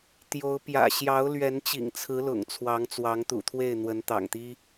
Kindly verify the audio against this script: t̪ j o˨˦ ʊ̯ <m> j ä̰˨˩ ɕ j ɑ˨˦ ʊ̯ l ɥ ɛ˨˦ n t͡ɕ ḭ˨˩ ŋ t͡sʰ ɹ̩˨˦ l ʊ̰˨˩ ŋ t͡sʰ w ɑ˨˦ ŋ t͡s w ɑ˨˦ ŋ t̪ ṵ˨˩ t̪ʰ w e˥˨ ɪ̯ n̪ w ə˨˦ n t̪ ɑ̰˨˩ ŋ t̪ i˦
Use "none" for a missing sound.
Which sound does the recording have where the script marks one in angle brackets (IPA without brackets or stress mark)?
p